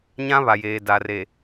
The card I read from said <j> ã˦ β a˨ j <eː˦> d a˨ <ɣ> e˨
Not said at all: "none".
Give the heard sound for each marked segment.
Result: ɲ, eː˨, r

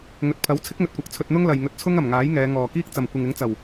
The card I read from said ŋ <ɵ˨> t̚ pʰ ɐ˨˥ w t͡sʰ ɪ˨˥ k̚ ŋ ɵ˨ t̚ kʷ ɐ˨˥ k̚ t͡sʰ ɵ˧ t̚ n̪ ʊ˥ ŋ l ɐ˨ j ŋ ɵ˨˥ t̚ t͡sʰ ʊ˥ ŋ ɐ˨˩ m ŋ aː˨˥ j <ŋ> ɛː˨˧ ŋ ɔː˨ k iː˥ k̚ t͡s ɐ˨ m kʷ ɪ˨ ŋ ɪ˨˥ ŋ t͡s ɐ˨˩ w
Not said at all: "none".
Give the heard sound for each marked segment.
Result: ɵ˨, ŋ

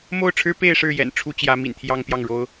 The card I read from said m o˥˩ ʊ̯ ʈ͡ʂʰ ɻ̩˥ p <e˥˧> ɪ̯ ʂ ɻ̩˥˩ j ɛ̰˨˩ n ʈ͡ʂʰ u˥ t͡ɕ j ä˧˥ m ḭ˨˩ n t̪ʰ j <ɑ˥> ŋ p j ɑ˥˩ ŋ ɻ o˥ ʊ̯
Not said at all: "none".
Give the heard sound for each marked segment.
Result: e˥˧, ɑ˥

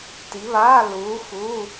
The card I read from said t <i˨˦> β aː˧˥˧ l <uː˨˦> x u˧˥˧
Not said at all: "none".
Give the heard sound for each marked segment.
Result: i˨˦, uː˨˦

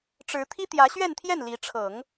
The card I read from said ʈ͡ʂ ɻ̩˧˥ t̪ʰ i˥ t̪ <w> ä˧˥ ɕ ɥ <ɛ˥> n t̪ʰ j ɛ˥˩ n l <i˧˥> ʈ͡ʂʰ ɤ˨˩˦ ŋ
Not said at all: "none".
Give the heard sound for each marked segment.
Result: j, ɛ˥˧, i˧˥

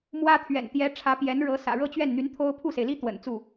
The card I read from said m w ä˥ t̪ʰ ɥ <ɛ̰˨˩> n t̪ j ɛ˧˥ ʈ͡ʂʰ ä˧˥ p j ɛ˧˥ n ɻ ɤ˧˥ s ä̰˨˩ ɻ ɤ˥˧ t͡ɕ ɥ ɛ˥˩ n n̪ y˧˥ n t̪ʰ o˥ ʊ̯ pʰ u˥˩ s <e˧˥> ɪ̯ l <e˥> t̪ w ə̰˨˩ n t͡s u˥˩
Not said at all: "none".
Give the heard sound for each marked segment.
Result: ɛ̰˨˩, e˩, i˥

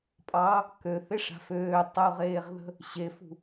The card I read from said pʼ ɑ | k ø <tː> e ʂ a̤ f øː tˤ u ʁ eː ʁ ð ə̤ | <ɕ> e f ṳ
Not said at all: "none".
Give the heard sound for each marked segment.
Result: θ, ɕ

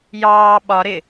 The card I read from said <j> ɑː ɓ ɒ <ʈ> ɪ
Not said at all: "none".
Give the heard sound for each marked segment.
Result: j, ɾ

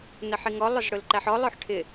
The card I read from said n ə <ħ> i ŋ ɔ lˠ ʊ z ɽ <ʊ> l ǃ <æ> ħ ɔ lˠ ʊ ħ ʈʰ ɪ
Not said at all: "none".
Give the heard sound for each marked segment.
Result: ħ, ʊ, æ

